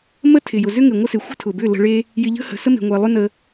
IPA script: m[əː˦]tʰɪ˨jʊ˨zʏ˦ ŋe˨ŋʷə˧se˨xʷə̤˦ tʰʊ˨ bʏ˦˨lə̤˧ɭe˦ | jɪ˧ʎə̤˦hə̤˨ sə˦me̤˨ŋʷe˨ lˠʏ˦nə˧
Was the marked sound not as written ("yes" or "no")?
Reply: yes